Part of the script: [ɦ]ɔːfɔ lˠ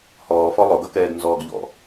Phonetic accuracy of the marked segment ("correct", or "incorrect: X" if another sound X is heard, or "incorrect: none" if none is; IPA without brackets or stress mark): incorrect: h